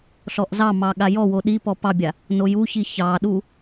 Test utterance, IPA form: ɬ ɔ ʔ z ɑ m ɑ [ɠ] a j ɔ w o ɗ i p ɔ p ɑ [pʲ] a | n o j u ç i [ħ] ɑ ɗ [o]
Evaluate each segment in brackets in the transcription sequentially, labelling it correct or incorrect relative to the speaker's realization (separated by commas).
correct, incorrect, incorrect, incorrect